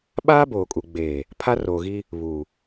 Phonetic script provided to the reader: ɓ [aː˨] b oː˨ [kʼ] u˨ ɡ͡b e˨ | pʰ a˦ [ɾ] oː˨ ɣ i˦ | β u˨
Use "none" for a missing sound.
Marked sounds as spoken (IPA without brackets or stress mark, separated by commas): aː˦, kʼ, r